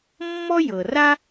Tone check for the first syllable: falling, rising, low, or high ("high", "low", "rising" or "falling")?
high